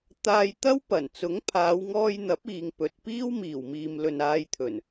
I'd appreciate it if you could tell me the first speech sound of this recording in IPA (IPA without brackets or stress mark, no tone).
t̪